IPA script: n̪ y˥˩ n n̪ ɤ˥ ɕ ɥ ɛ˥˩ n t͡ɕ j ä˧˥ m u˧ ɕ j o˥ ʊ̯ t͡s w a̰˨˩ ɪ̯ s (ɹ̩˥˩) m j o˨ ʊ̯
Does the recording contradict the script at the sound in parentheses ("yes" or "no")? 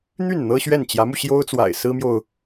yes